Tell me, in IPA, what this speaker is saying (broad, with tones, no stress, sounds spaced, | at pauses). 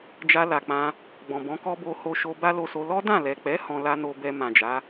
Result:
d͡ʒ a˧ l a˨ k͡p ã˧ | ɡ͡b ɔ̃˨ b ɔ̃˨˦ k ɔ˦ b o˧ h o˧ ʃ o˧ b a˦ l o˧ s o˧ l ɔ˦ d ã˦˨ l ɛ˨ k͡p ɛ˨˦ h ɔ̃˧ l a˦ n o˧ b ɛ˧ m ã˨ d͡ʒ a˨˦